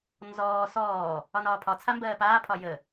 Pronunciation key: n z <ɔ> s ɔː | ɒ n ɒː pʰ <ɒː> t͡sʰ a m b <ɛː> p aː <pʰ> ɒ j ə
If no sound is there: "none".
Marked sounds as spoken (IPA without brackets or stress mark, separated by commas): ɔː, ɒ, ɜː, pʰ